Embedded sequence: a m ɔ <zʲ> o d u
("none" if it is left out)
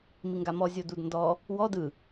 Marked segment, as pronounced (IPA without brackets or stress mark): zʲ